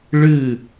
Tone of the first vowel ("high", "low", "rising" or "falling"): falling